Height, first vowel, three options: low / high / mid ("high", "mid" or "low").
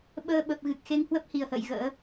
mid